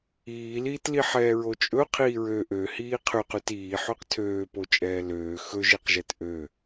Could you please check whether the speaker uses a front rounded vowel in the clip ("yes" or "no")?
yes